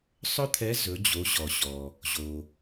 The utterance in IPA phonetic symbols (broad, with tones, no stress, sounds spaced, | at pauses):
sˤ ɵ˥ t̪ʰ ɛ˧˥ z ɵ˩˧ d͡ʑ o˩˧ ʑ ɔ˩ ɕ ɔ˩ | ʑ o˩